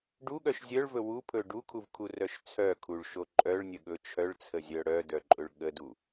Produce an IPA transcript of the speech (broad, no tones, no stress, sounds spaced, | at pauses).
ɖ u ɠ œ ʃ zʲ œ ɭ v ɵ w u pʰ ɵ ɖ u kʰ u v kʰ u r œ ʃ t͡sʰ œ kʰ u ɭ ʃ o ǃʼ œ ɭ nʲ ə ɠ ɵ t͡ʃʰ œ ɭ t͡sʰ ə zʲ œ ɽ œ d œ ǃʼ ɵ ɭ ɠ ə d u